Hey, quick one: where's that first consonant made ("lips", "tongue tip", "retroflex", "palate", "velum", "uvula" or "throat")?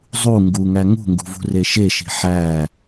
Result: tongue tip